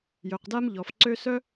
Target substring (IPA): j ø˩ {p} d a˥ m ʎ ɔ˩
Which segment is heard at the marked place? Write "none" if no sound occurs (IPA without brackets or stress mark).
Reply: q